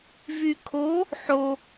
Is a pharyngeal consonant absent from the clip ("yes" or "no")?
no